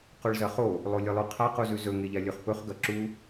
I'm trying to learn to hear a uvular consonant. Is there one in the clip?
yes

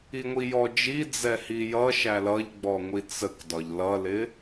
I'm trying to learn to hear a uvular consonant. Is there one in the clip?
no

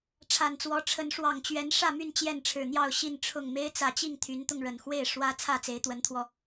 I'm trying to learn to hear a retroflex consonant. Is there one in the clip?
yes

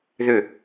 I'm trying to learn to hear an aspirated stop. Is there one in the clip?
no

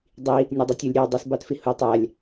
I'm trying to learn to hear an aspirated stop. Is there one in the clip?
no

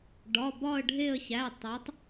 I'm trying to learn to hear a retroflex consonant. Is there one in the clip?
yes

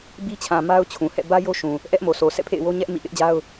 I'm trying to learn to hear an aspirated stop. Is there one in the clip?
yes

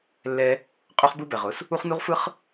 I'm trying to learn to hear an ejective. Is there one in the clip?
yes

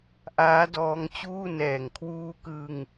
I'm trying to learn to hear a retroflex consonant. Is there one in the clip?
no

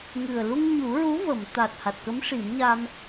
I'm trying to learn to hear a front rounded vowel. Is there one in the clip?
no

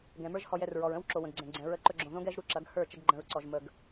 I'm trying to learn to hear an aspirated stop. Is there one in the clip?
no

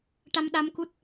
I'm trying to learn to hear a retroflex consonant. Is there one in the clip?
yes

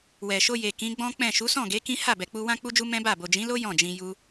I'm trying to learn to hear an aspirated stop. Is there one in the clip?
no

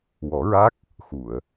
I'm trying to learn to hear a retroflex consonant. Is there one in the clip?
no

